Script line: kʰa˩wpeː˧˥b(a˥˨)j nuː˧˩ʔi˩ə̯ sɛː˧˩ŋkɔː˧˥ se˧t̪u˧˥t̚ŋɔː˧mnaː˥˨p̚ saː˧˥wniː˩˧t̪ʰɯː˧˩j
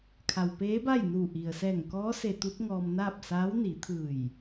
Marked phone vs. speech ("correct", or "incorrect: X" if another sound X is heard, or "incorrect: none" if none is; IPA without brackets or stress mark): correct